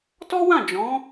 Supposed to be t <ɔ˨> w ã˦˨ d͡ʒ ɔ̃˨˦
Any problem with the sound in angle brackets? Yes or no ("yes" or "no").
yes